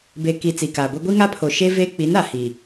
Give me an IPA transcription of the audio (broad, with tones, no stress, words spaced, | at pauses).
be˨ ki˨ t͡si˨kaː˨ɡʷe˦ ɡʷi˦ŋa˦pʰo˨ ʃe˦ ve˦ k͡pi˨˦na˨ hi˨